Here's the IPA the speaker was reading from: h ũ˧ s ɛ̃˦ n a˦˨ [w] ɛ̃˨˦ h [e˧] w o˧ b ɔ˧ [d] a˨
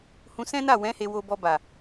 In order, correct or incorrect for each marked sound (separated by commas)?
correct, correct, incorrect